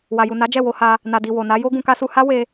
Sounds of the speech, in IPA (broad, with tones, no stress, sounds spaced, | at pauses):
w a˨ j u˨ n a˨˦ d͡ʒ ɛ˦˨ w o˧ h a˧ | n a˨ d i˨ w o˨ n a˨˦ j o˦ ɡ ũ˧ k a˦ s u˧ h a˦ w e˧